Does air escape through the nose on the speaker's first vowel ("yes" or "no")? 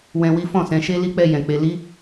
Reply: yes